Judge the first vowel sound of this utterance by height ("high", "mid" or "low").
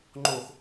mid